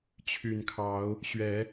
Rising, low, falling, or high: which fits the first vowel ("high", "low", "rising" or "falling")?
low